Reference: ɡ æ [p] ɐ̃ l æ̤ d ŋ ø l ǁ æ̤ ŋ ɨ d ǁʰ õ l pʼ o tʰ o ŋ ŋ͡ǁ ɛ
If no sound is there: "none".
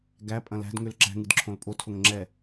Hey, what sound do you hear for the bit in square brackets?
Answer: pʼ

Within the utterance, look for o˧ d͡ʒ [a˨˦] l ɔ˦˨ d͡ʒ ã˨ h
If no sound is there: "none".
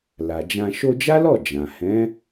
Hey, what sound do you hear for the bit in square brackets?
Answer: a˦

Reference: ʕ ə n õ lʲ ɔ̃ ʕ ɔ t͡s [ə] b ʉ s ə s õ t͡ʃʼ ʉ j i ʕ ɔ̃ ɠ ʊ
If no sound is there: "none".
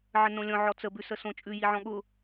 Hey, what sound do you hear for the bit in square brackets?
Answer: ə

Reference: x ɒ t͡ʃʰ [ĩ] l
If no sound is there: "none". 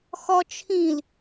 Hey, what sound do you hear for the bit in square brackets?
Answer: ĩ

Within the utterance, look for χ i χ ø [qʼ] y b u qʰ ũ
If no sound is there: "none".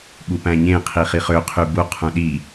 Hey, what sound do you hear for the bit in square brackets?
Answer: qʰ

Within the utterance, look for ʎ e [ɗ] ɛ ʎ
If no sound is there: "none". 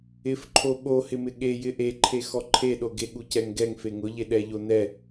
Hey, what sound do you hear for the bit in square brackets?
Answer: ɗ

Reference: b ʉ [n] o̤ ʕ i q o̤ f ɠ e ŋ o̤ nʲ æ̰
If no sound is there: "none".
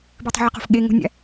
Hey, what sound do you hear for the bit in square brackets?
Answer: tˤ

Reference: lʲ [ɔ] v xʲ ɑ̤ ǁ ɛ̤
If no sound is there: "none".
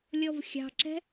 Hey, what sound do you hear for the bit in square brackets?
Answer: ɔ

